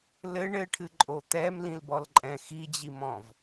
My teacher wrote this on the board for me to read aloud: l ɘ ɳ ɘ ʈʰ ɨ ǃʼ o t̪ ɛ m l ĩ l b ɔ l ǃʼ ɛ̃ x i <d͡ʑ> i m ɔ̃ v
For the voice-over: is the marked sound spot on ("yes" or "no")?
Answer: yes